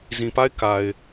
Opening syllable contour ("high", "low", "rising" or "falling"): low